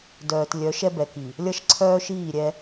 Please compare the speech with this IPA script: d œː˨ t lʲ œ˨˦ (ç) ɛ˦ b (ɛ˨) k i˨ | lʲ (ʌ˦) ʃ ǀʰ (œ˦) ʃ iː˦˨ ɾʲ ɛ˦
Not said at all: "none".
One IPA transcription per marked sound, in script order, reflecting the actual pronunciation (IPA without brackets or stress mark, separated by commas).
ʃ, ɛ˨, ʌ˦, œː˦